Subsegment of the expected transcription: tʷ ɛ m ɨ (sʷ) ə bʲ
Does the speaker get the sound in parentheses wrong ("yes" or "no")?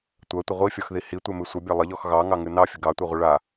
no